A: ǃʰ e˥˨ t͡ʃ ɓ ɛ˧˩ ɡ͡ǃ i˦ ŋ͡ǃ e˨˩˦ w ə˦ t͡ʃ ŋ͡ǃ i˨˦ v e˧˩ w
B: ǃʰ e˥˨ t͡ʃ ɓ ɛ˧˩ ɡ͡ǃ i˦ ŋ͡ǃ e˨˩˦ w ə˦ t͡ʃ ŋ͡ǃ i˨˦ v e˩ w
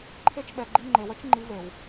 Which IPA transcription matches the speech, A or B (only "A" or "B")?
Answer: B